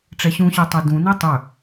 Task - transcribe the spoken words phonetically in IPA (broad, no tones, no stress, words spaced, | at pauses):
ʈ͡ʂɛɕũɕə˞tˤo dũnɨ tˤɵ